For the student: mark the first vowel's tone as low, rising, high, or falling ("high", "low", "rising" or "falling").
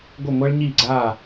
falling